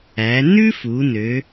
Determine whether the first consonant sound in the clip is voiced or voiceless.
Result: voiced